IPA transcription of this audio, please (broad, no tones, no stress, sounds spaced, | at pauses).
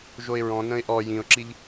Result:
ʒ o ɪ̯ ɹ ɔ̃ n ə̃ ɪ̯ ʔ ɔ j ĩ ʊ̯ ǁ i ʎ